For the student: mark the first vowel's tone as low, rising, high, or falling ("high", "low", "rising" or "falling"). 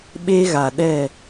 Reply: high